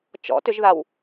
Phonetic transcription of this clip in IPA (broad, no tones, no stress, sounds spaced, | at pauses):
t͡ʃ ɔ̰ t ʏ ʒ ð a w